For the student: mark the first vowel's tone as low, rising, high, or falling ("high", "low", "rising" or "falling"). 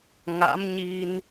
rising